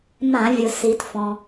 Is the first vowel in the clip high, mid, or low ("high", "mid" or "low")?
low